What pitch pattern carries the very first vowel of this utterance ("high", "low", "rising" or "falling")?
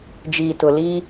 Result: low